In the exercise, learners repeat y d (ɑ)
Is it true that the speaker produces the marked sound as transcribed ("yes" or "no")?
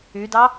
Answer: yes